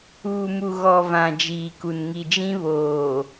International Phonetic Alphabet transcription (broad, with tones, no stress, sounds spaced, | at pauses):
uː˨ m u˨ ɣ ɔ˨ v ã˨ d͡ʒ iː˨ k u˨ n ŋ i˨ d͡ʒ ĩ˦ β oː˨